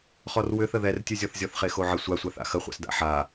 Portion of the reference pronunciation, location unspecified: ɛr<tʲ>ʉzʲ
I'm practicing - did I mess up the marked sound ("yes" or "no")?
no